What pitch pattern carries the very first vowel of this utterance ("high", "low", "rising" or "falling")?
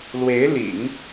rising